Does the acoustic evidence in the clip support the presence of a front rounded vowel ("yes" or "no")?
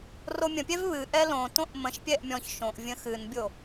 no